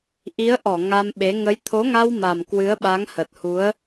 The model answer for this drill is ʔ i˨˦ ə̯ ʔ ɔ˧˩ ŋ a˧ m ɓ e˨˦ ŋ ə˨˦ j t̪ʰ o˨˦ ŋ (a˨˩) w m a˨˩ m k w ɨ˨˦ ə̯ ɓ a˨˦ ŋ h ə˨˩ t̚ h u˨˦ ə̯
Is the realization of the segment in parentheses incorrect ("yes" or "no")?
yes